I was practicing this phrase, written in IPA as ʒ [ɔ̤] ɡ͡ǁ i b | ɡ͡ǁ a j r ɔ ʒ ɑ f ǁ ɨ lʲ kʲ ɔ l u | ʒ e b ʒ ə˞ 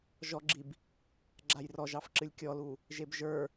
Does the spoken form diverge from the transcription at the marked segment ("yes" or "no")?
yes